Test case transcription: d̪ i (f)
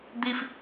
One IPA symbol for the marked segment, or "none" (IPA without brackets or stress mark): f